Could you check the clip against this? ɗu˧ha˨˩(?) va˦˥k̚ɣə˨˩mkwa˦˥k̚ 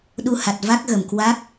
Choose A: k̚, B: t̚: B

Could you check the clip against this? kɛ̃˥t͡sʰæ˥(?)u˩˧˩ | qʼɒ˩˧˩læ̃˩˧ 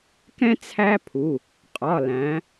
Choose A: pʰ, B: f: A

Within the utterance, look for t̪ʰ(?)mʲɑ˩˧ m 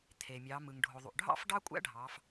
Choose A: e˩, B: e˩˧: A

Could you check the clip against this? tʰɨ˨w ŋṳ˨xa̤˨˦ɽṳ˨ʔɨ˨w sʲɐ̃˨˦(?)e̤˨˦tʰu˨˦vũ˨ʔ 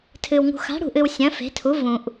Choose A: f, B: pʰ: A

